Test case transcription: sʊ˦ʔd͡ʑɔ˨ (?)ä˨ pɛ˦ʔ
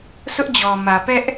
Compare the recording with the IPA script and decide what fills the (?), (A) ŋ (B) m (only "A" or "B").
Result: B